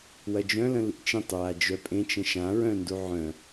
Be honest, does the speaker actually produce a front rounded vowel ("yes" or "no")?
yes